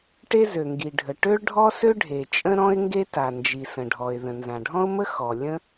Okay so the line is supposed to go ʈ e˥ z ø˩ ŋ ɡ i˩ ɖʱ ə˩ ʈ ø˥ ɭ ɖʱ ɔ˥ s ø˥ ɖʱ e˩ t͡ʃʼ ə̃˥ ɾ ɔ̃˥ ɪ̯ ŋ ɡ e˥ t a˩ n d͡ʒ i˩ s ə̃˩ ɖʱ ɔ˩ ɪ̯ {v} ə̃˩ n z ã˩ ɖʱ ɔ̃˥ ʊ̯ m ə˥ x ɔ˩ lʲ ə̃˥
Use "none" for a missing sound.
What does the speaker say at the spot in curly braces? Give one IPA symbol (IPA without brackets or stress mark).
ð